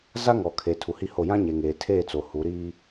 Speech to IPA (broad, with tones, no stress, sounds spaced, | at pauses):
z a˦ ŋ ɔ˨ kʰ e˨ tʰ u˨ h i˦ h o˦˨ j ã˦ ɲ e˨ ŋ eː˨ tʰ eː˦˨ t͡s o˨ h u˨˦ ɾ iː˦